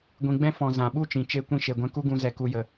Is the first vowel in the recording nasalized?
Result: yes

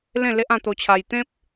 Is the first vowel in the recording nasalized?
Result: yes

